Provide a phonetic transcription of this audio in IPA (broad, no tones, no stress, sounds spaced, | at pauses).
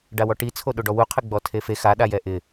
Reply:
ɖ a w ɔ ʈ i t͡sʰ o ɗ o ɖ ɔ w u qʰ ɪ ɡ͡b ɔ tʰ e f e x a ɗ a j ɛ ʔ ɪ